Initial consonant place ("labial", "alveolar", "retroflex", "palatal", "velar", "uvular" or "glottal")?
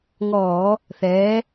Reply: velar